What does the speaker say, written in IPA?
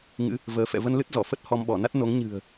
ŋ ɨ̰˧˥ | v əː˨˦ f ɛ̰˧˨ v ə˧ n l ɨ˦˥ t̚ z ɔ˧˩ f ə˦˥ t̚ h ɔ˧ m ɓ ɔ˧˩ n a˦˥ t̚ n o˨˦ ŋ ɲ ɨ̤˨˩ ə̯

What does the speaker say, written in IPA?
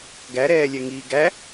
ɡ æ ɾ ɛː lʲ ɛ ŋ iː ɡ æ

